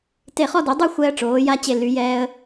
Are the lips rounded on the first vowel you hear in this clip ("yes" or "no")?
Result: no